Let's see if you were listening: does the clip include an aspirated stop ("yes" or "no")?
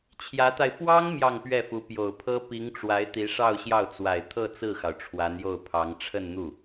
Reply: yes